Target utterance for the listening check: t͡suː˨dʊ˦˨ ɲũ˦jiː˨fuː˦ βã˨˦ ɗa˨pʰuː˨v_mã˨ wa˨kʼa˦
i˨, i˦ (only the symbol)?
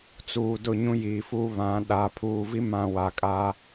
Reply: i˦